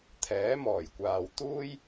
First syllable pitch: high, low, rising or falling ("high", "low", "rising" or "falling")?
rising